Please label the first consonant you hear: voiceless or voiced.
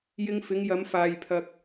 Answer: voiced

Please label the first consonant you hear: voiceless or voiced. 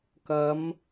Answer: voiceless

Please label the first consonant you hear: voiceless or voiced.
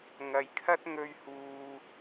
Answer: voiced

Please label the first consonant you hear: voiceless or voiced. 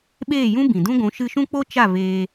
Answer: voiced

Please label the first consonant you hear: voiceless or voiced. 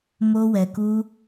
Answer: voiced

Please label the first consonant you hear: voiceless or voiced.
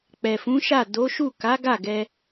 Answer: voiceless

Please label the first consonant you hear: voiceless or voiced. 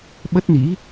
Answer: voiced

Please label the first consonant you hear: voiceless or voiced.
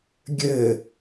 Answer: voiced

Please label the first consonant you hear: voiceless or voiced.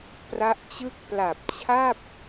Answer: voiceless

